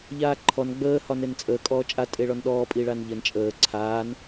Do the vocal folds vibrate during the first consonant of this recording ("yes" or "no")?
yes